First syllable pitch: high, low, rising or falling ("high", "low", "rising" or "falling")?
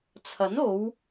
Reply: rising